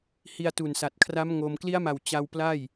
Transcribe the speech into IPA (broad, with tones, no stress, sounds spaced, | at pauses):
h i˧ a̯ t u˨˩ n s a˨˩ t̚ kʰ r a˦˥ m ŋ o˧ m k l i˦˥ a̯ m a˨˩ w t͡ɕ a˧ w p l a˥˩ j